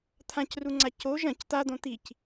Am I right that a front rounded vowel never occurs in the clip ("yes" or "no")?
yes